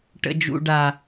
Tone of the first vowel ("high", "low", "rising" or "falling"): high